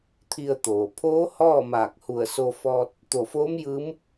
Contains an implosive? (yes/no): no